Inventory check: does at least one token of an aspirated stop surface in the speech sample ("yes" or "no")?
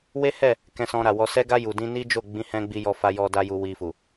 no